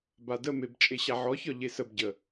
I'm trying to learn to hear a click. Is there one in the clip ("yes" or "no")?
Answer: no